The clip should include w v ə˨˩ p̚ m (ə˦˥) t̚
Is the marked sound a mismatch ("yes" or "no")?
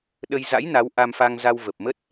no